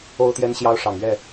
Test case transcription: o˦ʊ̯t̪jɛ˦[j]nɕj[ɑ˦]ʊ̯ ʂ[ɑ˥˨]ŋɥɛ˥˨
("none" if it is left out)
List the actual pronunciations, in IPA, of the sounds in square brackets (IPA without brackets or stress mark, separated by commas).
none, ɑ˦, ɑ˨˩